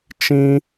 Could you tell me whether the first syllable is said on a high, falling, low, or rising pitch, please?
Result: high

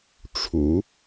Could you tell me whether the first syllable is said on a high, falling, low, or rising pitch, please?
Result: low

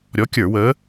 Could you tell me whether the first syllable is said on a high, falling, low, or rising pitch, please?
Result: rising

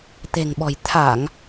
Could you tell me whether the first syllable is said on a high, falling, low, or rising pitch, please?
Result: low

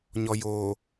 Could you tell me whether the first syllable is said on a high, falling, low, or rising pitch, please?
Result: low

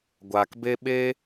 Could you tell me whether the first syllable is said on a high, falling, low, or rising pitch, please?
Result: low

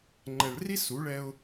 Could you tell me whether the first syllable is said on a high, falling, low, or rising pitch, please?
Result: low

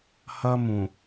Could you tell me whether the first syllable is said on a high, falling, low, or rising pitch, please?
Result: high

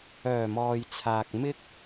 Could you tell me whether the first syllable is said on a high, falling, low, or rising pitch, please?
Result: low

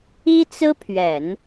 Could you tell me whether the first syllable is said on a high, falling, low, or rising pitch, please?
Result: high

